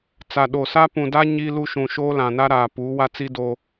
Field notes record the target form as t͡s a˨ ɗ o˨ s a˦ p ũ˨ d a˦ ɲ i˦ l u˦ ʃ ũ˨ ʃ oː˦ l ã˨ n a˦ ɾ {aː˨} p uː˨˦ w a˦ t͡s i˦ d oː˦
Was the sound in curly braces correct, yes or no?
yes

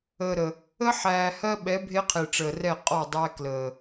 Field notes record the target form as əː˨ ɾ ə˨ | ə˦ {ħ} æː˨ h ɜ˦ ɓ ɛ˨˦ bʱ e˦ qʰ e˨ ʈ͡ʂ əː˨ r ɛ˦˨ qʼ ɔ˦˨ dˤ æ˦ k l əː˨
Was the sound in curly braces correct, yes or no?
yes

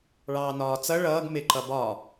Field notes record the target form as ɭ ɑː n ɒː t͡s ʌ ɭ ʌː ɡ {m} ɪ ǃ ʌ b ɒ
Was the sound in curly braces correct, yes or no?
yes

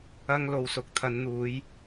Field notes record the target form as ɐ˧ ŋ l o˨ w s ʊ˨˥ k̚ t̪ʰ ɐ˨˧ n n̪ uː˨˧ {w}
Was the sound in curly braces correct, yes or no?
no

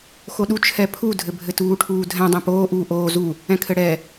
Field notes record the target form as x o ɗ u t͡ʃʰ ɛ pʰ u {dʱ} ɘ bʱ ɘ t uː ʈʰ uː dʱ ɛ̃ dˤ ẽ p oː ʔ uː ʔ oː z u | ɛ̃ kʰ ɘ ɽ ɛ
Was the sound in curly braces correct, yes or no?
yes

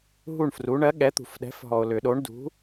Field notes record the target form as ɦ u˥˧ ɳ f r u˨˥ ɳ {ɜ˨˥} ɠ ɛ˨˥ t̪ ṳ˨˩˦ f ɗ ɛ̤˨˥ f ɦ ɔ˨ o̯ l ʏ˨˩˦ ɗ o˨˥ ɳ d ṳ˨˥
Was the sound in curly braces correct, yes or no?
yes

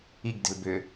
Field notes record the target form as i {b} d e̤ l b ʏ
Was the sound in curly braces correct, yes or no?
no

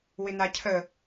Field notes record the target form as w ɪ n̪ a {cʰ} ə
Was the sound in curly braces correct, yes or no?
yes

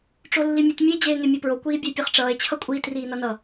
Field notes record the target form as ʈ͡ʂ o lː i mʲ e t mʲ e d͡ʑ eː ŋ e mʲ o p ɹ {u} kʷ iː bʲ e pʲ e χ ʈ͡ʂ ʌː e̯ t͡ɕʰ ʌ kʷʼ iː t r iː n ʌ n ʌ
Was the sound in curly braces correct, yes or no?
no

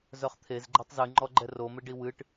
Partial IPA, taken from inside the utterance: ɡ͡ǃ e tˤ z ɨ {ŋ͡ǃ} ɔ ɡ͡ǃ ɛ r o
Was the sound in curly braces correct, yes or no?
yes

